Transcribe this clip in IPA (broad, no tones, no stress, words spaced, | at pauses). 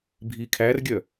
bʱikʰærɡʲœ